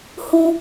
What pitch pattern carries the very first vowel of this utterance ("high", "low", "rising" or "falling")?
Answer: high